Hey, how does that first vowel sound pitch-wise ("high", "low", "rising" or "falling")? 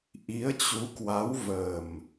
rising